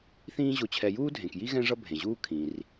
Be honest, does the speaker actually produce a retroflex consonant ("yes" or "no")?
yes